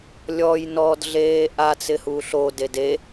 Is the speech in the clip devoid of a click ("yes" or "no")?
yes